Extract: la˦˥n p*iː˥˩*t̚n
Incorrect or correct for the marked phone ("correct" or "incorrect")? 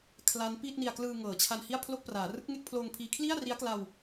correct